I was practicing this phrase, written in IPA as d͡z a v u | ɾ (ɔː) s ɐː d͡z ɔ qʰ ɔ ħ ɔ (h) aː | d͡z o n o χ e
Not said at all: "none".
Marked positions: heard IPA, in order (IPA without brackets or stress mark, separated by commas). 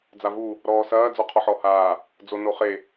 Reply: ɔː, h